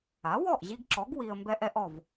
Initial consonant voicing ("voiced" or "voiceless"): voiced